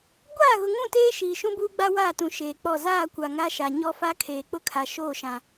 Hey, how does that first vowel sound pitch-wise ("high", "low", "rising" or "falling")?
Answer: falling